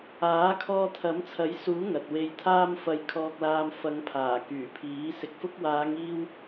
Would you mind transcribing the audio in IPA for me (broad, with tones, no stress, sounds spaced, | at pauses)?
aː˨˥ kʰ ɔː˧ t̪ʰ ɐ˨˥ m t͡sʰ ɐ˨˥ j s uː˨˥ ŋ ɐ˨ t̚ w e˧ j t̪ʰ aː˥ m f ɐ˧ j kʰ ɔː˧ k̚ l aː˧ m f ɐ˨˧ ŋ pʰ aː˨˩ k yː˨˩ pʰ iː˨˥ s ɪ˨ k̚ f ʊ˧ k̚ w aː˨˧ ŋ iː˥ w